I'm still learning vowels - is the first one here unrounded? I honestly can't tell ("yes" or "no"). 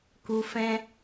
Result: no